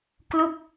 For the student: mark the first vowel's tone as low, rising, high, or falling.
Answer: falling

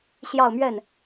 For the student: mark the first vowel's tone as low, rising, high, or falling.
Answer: falling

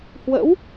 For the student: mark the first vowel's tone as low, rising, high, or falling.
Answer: rising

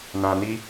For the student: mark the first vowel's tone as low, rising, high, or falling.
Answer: low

